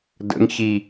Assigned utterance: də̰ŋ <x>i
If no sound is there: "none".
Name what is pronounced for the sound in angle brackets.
ç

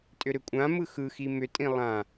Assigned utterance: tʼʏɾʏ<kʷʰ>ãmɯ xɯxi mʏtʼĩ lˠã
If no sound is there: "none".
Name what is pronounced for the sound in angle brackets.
kʷʼ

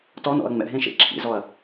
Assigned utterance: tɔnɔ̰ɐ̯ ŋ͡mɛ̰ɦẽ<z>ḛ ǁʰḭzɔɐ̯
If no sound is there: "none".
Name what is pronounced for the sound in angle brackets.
ʃ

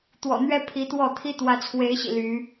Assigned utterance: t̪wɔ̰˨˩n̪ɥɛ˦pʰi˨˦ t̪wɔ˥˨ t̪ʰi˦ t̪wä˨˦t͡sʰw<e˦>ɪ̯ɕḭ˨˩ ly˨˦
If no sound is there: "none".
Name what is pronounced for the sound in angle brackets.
e˨˦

